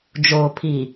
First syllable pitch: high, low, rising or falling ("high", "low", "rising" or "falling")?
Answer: low